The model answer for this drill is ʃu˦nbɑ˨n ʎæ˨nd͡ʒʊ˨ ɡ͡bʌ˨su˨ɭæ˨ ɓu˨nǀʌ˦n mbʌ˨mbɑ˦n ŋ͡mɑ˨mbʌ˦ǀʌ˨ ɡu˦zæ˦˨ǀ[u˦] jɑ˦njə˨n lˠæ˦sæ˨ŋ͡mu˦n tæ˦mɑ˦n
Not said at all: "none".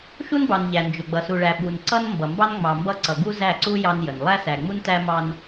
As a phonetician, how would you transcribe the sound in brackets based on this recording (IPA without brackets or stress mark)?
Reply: u˦